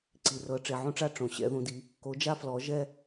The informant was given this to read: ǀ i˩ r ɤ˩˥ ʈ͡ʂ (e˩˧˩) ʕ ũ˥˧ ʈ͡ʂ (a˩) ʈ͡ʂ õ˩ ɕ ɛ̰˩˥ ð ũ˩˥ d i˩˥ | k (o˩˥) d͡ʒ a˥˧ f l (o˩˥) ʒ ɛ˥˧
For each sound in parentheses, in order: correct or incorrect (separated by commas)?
correct, incorrect, correct, incorrect